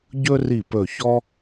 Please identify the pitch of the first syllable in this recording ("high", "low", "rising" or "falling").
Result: high